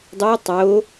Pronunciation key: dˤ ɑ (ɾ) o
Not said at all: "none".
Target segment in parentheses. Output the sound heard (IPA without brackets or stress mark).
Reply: tˤ